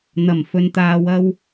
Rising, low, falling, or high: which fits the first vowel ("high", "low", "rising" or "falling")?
low